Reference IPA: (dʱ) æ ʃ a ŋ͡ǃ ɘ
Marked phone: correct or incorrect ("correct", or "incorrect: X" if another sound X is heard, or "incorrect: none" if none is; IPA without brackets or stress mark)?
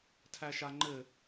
incorrect: tʰ